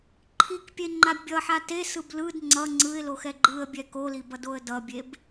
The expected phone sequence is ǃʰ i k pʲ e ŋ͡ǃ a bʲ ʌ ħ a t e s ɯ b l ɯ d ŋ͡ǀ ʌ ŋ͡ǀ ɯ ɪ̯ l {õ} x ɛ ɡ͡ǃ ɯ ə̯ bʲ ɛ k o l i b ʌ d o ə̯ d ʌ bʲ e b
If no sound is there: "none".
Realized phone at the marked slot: o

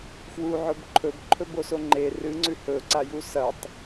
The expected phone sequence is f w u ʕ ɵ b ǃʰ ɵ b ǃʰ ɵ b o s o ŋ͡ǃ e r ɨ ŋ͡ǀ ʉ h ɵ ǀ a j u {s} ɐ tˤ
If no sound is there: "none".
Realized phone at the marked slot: s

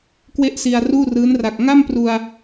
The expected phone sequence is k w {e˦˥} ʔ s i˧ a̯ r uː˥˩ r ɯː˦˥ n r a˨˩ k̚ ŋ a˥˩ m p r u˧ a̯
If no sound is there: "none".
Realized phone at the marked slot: e˥˩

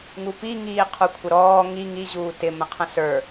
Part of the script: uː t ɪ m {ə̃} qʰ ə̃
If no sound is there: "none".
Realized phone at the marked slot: ə̃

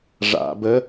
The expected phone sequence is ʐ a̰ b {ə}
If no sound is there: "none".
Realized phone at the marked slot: ə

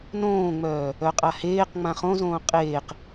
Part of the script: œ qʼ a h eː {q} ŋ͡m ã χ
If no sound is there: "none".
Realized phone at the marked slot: q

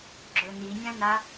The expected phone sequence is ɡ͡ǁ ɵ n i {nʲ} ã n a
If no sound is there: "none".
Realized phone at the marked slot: nʲ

